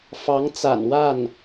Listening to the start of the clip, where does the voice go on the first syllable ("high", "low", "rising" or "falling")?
rising